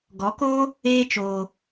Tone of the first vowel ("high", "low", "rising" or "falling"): rising